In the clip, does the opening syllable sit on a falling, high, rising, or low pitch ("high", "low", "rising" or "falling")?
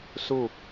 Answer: falling